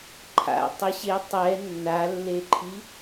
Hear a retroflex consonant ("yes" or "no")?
no